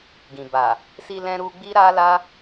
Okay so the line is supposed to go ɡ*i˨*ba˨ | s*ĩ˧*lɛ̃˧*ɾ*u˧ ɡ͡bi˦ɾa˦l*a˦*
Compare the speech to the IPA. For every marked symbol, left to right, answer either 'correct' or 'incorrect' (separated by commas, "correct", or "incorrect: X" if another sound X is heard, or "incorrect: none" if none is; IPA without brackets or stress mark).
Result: incorrect: ĩ˨, incorrect: i˧, correct, correct